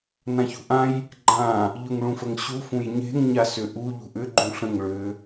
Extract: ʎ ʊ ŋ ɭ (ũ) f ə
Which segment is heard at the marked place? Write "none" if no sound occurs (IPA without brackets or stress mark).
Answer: ũ